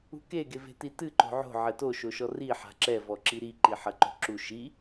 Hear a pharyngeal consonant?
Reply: yes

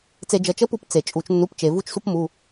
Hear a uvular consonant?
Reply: no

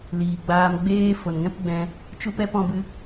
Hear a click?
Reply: no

